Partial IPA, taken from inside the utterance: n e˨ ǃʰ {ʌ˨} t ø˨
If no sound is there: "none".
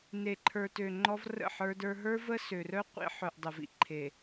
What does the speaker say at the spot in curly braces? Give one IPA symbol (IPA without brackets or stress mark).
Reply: ə˞˨